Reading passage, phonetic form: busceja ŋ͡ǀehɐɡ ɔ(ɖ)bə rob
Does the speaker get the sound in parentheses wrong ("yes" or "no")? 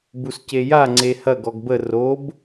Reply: yes